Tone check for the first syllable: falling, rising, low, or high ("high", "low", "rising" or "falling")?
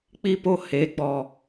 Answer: high